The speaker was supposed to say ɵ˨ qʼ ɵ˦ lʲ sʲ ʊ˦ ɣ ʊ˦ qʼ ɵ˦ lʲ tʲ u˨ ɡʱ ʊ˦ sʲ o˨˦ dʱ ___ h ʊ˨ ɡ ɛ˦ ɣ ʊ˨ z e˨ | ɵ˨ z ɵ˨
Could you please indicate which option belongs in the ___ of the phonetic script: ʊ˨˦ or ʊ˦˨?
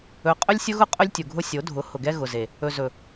ʊ˨˦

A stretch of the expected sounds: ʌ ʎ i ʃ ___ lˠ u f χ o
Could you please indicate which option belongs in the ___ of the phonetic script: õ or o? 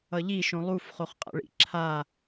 õ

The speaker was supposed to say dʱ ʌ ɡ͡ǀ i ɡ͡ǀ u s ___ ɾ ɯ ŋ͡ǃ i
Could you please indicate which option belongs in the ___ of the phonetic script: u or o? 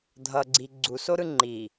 o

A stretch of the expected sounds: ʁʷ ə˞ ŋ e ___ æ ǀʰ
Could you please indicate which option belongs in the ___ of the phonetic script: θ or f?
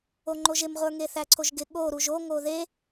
θ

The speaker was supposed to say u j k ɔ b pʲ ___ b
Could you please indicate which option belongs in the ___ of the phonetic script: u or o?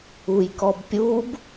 u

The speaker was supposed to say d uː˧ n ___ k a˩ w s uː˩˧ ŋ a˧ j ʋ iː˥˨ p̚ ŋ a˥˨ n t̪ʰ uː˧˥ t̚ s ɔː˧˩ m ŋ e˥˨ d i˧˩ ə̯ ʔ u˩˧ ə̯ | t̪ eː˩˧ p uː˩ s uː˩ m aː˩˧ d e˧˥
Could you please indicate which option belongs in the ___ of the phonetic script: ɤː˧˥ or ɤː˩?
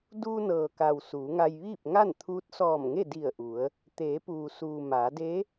ɤː˩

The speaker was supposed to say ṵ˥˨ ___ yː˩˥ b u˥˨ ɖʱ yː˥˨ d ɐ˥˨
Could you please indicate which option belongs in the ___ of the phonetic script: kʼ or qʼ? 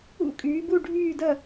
kʼ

